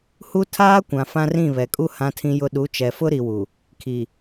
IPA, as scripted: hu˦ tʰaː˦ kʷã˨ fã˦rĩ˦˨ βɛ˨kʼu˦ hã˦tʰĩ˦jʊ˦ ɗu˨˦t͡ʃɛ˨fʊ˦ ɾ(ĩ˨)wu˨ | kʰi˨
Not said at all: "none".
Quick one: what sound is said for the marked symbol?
i˨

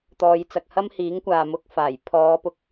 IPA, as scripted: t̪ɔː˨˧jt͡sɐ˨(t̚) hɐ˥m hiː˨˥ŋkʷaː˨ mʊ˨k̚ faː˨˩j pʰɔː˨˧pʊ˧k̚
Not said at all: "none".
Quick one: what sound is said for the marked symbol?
k̚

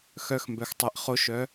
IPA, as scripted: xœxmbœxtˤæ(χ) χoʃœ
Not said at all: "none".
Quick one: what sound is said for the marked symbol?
ʔ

